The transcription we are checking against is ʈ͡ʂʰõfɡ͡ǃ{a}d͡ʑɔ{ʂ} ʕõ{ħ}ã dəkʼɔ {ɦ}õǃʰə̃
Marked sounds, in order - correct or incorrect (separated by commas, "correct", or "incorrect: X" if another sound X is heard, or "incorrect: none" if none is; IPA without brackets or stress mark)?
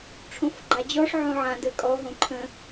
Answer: correct, correct, incorrect: ʕ, correct